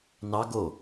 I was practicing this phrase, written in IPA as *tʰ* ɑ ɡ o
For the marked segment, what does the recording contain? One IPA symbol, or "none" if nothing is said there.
n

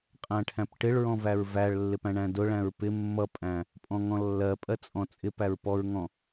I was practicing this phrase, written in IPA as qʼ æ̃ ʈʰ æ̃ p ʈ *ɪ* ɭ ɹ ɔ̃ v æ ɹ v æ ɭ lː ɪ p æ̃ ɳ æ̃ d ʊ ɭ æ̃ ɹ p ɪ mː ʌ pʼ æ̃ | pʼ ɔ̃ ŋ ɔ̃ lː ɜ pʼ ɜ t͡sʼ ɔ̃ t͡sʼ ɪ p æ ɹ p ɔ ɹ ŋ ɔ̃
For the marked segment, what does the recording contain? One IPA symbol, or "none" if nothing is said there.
ɪ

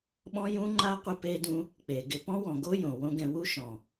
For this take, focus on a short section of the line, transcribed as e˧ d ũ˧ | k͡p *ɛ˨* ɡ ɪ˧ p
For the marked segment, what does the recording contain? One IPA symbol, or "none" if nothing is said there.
e˨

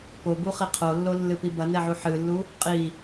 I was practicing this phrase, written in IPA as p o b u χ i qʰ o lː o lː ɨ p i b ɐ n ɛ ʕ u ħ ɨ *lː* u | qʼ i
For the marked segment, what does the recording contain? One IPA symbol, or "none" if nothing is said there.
lː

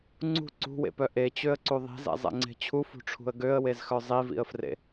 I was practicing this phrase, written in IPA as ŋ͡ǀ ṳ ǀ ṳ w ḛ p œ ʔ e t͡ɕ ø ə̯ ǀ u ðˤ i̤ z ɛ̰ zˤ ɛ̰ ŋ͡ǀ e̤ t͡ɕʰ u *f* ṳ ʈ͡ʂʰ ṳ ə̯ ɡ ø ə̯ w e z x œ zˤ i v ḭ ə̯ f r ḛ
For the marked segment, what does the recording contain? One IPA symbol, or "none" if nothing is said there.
f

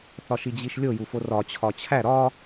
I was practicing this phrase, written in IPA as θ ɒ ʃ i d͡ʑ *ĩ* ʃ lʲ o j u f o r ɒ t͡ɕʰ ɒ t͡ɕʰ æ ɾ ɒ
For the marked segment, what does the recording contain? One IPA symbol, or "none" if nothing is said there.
i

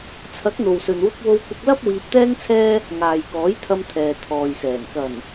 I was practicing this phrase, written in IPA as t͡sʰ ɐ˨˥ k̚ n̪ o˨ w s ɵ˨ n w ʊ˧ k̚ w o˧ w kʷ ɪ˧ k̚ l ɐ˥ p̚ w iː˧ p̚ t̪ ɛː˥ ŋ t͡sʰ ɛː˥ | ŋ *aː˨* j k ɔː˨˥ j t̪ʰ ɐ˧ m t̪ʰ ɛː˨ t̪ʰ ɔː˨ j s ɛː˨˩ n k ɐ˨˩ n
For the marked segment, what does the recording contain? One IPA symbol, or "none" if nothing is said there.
aː˨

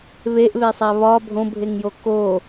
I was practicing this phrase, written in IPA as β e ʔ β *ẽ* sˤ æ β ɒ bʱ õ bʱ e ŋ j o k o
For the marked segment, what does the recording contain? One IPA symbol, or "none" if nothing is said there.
e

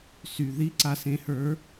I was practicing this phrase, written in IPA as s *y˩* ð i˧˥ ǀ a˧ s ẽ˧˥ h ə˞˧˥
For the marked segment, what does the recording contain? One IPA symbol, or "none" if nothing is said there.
y˩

